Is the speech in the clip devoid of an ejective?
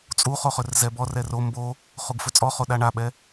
no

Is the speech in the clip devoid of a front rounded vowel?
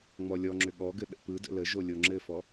no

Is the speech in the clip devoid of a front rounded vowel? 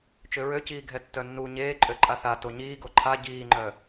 no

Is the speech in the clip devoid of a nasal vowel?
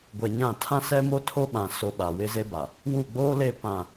no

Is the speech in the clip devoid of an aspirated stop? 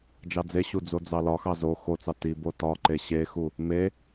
yes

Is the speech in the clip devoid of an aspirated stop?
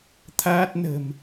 no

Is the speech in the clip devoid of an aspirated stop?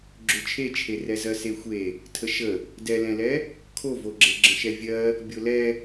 no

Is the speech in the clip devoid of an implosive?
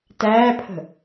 yes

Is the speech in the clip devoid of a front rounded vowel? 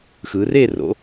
yes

